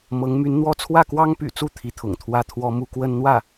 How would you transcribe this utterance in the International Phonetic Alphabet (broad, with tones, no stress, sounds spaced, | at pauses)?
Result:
m ɤ˧˥ ŋ m y˧˥ n n̪ w ɔ˥˧ t͡sʰ w ä˥˩ k w ɑ˥ ŋ p y̰˨˩ t͡s u˥˩ t̪ʰ i˧˥ t̪ʰ ʊ̰˨˩ ŋ t̪ʰ w ä˥˩ t̪ʰ w ɔ˥ m u˥ k w ə˥ n n̪ w ä˥˩